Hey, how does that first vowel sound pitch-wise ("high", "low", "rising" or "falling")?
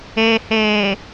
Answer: low